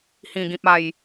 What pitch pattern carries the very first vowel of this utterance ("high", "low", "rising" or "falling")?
low